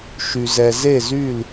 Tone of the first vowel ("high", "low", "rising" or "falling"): low